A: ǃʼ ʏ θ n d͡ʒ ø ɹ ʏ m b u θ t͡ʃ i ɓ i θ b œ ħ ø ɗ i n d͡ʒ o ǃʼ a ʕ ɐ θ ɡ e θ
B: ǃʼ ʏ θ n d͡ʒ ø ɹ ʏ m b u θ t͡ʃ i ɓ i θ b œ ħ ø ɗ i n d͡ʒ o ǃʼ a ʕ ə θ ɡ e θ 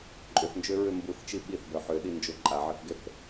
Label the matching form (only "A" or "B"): A